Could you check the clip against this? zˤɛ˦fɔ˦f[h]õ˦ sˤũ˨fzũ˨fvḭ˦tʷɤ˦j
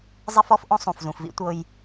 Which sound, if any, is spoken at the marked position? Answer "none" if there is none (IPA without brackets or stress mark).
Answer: ʔ